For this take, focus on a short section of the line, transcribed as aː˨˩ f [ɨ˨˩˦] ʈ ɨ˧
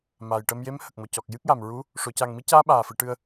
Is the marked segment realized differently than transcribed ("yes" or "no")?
no